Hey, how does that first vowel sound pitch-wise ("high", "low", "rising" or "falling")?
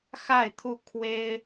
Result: falling